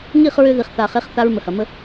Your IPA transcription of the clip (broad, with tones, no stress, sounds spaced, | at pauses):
ŋ i˦˨ χ ɹ ʏ˧ ð i˨ χ θ a˨ χ e˨˦ χ θ a˦ ɹ m ə˨ h ɐ˨ m ə˦